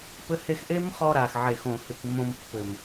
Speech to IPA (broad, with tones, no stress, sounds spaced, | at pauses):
p ɘ˦ h e˧ x ʔ e˦ m χ ɔ˧ ɾ a˨ x ʕ e˨ x õ˨ h ɨ˨ k mː õ˧ m pː ɘ˨ m